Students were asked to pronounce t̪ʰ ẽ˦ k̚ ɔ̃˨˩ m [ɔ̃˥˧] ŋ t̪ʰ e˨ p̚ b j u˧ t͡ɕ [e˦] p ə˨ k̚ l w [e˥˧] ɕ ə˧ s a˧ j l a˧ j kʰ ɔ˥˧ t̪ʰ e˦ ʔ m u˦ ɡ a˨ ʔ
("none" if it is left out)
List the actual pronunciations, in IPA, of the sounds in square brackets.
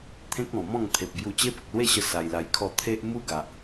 ɔ̃˥˧, e˦, e˥˧

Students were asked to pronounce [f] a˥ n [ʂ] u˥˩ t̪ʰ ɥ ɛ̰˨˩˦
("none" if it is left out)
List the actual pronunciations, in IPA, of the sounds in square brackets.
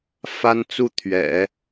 f, t͡s

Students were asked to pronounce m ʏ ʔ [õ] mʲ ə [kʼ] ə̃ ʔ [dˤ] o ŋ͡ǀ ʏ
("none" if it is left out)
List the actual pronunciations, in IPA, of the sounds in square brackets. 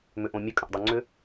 õ, kʼ, dˤ

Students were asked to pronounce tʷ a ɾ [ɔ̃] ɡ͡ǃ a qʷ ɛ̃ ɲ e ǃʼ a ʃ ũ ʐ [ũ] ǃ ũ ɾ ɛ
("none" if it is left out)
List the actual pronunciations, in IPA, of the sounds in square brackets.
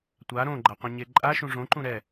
õ, õ

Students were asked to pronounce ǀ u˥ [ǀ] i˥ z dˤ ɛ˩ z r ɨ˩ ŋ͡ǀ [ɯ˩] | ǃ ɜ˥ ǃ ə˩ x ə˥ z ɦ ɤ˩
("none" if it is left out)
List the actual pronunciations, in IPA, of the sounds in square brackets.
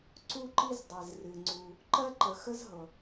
ǃ, u˩

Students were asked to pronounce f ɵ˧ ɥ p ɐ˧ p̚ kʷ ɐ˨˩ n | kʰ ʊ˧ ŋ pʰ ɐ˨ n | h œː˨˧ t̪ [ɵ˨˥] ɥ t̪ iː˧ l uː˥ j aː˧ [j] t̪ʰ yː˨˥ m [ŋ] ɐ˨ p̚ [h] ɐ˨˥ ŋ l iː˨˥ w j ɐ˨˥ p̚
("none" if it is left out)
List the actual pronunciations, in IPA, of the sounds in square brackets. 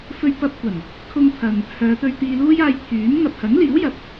ɵ˧, j, ŋ, h

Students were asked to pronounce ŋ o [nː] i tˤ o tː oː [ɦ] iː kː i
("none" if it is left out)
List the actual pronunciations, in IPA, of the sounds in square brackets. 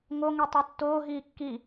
ŋ, ɦ

